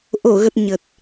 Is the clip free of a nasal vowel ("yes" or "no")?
yes